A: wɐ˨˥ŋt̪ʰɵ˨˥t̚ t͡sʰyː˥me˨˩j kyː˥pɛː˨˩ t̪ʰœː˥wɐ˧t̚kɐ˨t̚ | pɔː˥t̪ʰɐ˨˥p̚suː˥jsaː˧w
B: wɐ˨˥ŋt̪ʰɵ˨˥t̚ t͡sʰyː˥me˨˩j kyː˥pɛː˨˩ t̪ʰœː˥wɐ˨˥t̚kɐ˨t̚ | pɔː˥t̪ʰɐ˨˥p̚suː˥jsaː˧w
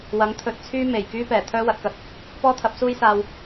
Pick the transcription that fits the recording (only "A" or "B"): B